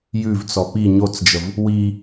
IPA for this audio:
jʉvt͡sɔ pi ɲot͡sd͡ʒəv | wi

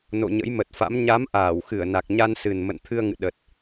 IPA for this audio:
no̰˧˨ɲə̰˧˥jmə˨˩t̚fa̰˧˥m ɲa˨˦mʔaː˧˩w xɨ˧˩ə̯na˨˩k̚ɲa˧nsɨ˨˩n mə̰˧˨nt̪ʰɨ˧ə̯ŋɨ̰˧˨ ɗə˨˩t̚

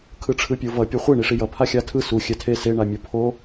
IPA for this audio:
kʰɯʈ͡ʂʰɯpʲovʌ pʲuχʷe ɳiʂijʌ pʰaxʲatʰɯ su xʲɛtʰe se ɳamʲupʰo

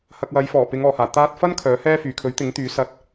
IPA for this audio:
hɐ˨k̚wɐ˨˧jfɔː˨˩pɪ˨˧ŋ ɔː˨˩haː˨˩ t̪aː˧t̚fɐ˥n kʰœː˨˥hɛː˥fyː˨ kʰɵ˨˥ɥt̪ɪ˨˥ŋt̪yː˨˥ sɐ˧t̚

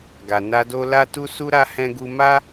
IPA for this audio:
ɡa˨ na˧do˧ la˧tu˧su˧ɾa˧ hɛ̃˧ɡu˧ ma˦

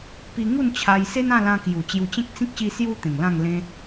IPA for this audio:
pi˧ŋu˥˧nt͡ɕʰa˧jse˦n ã˥˧lã˧kju˨˩ t͡ɕju˧t͡ɕẽ˦k̚t͡sĩ˦k̚ ɕi˦sju˦t̪ẽ˨˩ŋ lã˥˧ŋlẽ˦

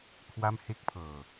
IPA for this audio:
kʰwa˥˩m he˥˩k̚pʰɤː˧

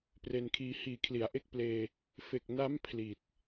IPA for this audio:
pre˧nkʰiː˧ hiː˨˩kʰli˩˦a̯ʔe˦˥k̚pleː˧ | fe˨˩k̚ na˦˥m pʰli˨˩t̚

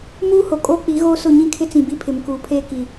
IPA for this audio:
muː˦ho˨ kʼoː˦k͡pi˨˦ɣoː˦sʊ˦˨ ɲĩ˦kʰɪ˦t͡sĩ˨ bi˦pʰɪ˨mkuː˨pʰeː˦ ki˨

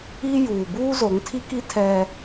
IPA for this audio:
i˦ juː˨ buː˦zo˨˦ŋtʰi˦ki˦ tʰɛ˦

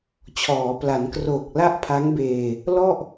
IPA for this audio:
t͡ɕʰɔː˩˦pla˩˦nkroː˨˩k̚ la˥˩ʔpʰa˦˥ŋbeː˧ | lɔ˥˩ʔ

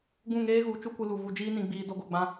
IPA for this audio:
ɡũ˦˨ŋeː˦ɣu˨˦ t͡ʃu˦kʷɨ˧lu˨ vu˧d͡ʒiː˦nĩ˧ɡ͡biː˧ do˦ɡo˦˨ɡ͡bã˦

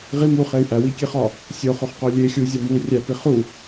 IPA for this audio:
ʁi muχey̯ ʔæwikʲeχɒ | sʲoχoχqo lʲe xʲuzʲɒ mu rʲæpi χu

